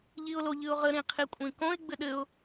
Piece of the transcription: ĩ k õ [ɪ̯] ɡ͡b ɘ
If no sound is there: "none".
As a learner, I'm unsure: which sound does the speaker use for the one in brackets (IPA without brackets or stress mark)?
ɪ̯